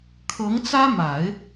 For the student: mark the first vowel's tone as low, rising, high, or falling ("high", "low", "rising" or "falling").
rising